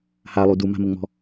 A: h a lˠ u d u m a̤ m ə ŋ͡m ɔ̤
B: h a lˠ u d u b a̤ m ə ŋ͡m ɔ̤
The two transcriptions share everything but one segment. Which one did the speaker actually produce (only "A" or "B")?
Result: A